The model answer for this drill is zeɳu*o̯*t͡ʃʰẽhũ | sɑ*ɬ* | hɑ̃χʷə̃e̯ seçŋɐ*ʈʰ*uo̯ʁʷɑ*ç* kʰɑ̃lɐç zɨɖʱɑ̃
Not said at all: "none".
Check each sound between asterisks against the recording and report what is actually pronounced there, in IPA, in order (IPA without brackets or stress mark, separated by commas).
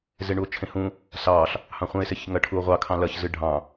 o̯, ɬ, ʈʰ, none